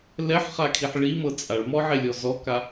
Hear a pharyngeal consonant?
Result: yes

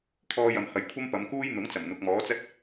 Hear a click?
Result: no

